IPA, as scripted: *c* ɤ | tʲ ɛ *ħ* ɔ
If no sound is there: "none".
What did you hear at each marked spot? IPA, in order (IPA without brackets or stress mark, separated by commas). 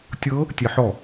tʲ, ħ